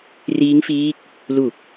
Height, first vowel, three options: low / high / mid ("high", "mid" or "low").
high